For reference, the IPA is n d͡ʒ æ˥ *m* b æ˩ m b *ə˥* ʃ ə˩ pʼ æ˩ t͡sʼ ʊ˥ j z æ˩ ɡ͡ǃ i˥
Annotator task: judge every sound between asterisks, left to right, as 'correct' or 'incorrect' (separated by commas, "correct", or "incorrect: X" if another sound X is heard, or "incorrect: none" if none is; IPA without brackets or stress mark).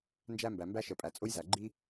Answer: correct, incorrect: æ˥